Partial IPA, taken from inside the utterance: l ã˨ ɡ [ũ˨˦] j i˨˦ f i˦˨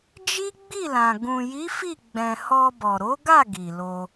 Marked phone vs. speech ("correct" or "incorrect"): incorrect